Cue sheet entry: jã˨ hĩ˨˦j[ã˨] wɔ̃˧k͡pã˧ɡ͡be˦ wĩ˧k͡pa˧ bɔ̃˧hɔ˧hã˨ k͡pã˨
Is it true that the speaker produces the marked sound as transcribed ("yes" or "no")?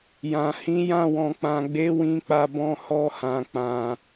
no